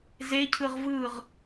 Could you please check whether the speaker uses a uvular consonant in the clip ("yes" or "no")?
yes